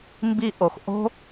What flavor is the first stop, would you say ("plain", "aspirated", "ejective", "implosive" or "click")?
plain